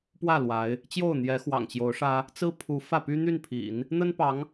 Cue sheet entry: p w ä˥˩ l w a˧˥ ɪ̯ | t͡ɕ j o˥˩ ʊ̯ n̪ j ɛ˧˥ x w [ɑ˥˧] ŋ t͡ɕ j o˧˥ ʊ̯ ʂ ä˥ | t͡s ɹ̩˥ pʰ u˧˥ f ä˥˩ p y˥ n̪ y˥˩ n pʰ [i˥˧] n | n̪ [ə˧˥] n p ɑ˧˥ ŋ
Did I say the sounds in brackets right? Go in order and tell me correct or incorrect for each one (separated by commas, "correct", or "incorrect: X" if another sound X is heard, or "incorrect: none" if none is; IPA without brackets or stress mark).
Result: incorrect: ɑ̰˨˩, incorrect: ḭ˨˩˦, incorrect: ə˥